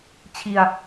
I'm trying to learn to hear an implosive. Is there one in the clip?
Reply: no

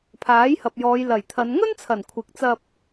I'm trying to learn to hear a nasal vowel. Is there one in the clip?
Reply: no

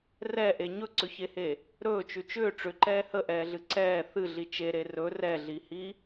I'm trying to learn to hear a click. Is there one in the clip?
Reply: yes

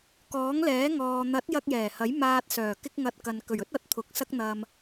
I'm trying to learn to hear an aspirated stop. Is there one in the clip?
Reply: yes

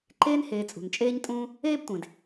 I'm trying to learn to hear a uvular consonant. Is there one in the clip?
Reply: no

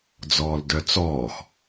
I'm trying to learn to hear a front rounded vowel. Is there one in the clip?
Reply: yes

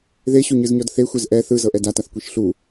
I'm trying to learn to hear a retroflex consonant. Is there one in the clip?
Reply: no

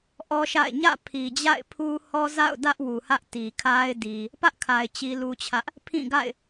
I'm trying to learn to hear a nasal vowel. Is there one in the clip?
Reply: yes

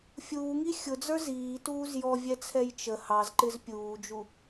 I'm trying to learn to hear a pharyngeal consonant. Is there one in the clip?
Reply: no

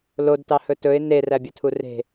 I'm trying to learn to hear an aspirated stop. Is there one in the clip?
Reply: yes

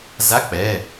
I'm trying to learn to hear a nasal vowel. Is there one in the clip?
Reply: no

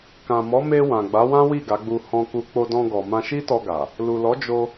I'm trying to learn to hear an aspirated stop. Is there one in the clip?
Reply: no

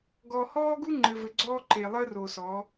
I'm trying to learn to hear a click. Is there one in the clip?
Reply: yes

